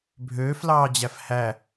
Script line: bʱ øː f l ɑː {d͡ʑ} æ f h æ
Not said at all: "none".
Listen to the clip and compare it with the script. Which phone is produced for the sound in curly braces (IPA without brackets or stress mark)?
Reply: d͡ʑ